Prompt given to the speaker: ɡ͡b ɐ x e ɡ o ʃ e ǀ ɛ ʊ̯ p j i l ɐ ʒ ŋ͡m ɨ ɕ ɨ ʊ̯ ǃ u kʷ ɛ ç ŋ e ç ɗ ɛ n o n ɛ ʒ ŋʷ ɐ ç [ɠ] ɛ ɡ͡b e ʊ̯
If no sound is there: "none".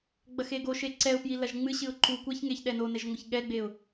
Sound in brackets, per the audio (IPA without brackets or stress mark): ɠ